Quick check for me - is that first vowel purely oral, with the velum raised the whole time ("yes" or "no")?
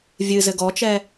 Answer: yes